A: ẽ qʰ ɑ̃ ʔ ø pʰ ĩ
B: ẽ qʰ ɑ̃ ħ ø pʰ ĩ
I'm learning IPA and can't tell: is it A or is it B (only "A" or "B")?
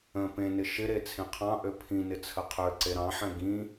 A